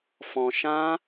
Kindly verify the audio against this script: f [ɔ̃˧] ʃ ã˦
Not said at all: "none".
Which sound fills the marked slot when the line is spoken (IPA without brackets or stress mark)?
ɔ̃˧